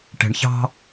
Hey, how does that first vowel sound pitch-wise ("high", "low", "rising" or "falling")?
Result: low